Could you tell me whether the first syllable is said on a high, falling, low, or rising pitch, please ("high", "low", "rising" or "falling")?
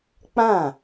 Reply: falling